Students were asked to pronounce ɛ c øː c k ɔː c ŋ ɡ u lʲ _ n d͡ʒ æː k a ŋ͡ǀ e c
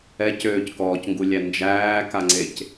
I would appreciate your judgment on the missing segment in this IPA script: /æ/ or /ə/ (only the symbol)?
æ